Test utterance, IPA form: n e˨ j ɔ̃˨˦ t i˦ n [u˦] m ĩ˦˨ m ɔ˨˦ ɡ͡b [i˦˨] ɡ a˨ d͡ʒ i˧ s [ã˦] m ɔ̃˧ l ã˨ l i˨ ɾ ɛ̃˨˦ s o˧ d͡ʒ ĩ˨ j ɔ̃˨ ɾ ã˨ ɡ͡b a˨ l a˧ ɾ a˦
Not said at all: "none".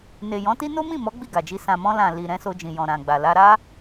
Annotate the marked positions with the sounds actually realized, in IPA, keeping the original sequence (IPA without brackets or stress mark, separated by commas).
o˦, i˦˨, ã˨